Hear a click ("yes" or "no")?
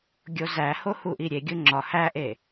yes